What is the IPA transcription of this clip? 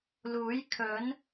l uː˨˥ j kʰ ɵ˨˥ n

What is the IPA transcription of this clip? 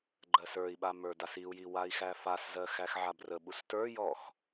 ɡ͡ǃ ɜ s ə˞ i̯ ɓ a m ə˞ d a s i u̯ j i w a i̯ x æ f a s z ɜ x æ x ʕ a b r ə ɓ u s t ə˞ j ɔ x

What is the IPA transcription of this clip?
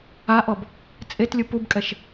a ʔ ɔ b | t͡sʼ e t lʲ ɯ p u b kʼ ɛ ʃ

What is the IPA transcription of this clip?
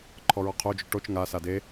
ǃʰ ɔ ɹ ɔ qʰ o d͡ʒ o ʈ o t͡ʃ ŋ a s a d e

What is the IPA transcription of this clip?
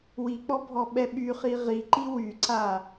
w i k͡p ɔ bʱ ɔ ɓ ɛ ɓ y χ i ʁ i ǃ i w y ǀ a

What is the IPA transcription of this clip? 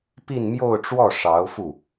p i˥˧ n m j o˥˧ ʊ̯ ʈ͡ʂ w ɔ˥˩ ʂ ɑ˧˥ ʊ̯ f u˥˩

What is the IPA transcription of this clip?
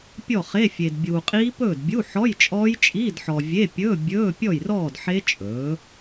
pʲ ɔ˥˨ χ e˧˥˧ fʲ e˨ d bʲ uː˨ qʼ iː˦˥ p ɵː˥˨ d bʲ u˧˥˧ ħ ɔ˧˥˧ j t͡ʃʼ ɔː˦˥ j t͡ʃʼ iː˧˥˧ d ħ ɔ˨ vʲ e˧˥˧ pʲ ɵ˧˥˧ bʲ ɵː˧˥˧ pʲ ɔ˥˨ j r ɔː˥˨ d ħ e˦˥ t͡ʃʼ ɵː˩˥

